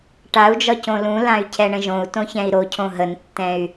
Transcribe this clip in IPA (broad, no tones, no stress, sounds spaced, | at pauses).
ʈ a u̯ d͡ʒ ɒ c õ l ũ l ã y̯ cʰ ɛ ɳ ə̃ ʒ õ u̯ t õ ç ɛ̃ i̯ ɾ o cʰ õ ɦ ə n tː ɛ̃ y̯